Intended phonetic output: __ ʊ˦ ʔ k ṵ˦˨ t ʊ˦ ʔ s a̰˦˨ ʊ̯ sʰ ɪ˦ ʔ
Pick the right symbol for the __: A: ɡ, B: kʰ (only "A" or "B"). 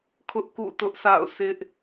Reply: B